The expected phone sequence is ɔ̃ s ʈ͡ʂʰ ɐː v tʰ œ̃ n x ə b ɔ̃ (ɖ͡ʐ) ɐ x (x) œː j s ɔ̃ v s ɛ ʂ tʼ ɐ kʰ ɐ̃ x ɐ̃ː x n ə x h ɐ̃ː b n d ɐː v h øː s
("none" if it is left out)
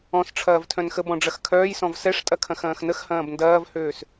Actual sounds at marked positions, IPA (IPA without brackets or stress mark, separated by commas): ɖ͡ʐ, kʰ